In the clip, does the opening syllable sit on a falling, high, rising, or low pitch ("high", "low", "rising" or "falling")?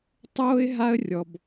high